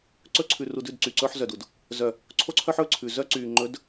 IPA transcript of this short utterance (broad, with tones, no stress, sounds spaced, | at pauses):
ǀ ɵ˦ ǀʰ ʉ˨ r u˨ d ʉ˦˨ d ǀ y˨ ǀ ɵː˦ ħ z œ˨ d u˨ d | z œ˨ | ǀʰ o˦ ǀʰ œ˦ ħ ɵː˦ ǀʰ ʉ˨ z œ˦ ǀ yː˨ ŋ͡ǃ ɵ˨˦ d